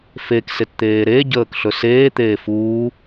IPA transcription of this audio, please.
f e k s e t t̪ eː ɾ e ɟ əː k ɬ ɵ s eː t̪ eː f uː

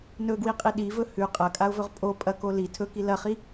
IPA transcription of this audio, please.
n ɵ ɡ w i qʼ i ɗ i v ɵ h ʉ qʼ ɐ kʼ a ʊ̯ v ɵ ʁ pʼ o pʼ ɐ k o l i tʰ ɵ k i l ɐ χ i

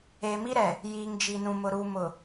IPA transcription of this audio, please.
eː˨ m i˦ ɾ ɛ˨ | j iː˨ ŋ d͡ʒ i˨ n ũ˨ m ʊ˨ ɾ u˨ m ʊ˨

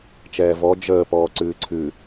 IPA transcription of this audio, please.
t͡ʃ ɛː v ɔ d͡ʒ əː p ɔː ǀ ɨː ǀʰ ɨ

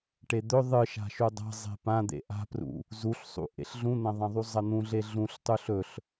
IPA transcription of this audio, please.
ʈ e d̪ ɵ ðˤ ɨ ʃ a̤ ʃ u dˤ a̤ zˤ e̤ p ã d̪ ḛ ʔ a̤ p r ṵ | z u ɬ sˤ ṵ ʔ ḛ ɬ ɮ ũ n̪ ɐ̃ ðˤ ɐ̃ ðˤ u zˤ ɐ n̪ ũ ɮ e ɮ ũ ɬ tˤ u ɬ ɵ ɬ

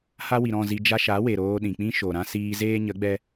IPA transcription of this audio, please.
h a˦ w i˨ ɾ ɔ̃˦˨ z i˧ d͡ʒ a˧ ʃ a˨˦ w e˨ ɾ oː˧ ɗ ĩ˨ k͡p ĩ˦ ʃ o˨ ɾ ã˦ s iː˧ z eː˦ ɲ ə˨˦ ɡ͡b ɛ˦

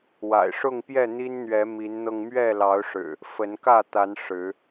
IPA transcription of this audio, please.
w a̰˨˩ ɪ̯ ʂ ʊ˥˨ ŋ p j ɛ˥˨ n̪ i˦ n n̪ ɥ ɛ˨˦ m i˨˦ n n̪ ɤ˧ ŋ m ɥ ɛ˥˨ l ɑ˨˦ ʊ̯ ʂ ɻ̩˨˩ | f ə˨˦ n k ä˥˨ t̪ a˨˦ n ʂ ɻ̩˨˦

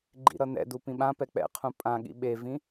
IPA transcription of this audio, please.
ɡ͡ǃ ḭ ɾ ʌ n ɛ̰ d u p ĩ ɓ ã p ɛ k͡p ɛ̰ qʰ ũ pʼ ã ɠ ḭ ɓ e v ĩ

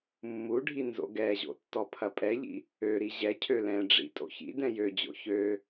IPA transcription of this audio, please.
mː u ɖʱ i n z o̰ ɡ ɛ ʑ o̰ tː ɔ pʰ ɐ pʼ ɛ ʎ ḭ | ø ɾ i ʑ ɛ cʰ ø l ɛ̃ ɖ͡ʐ ḭ tʼ o̰ ç ḭ d ɛ̃ j ø d͡ʑ o̰ ç ø

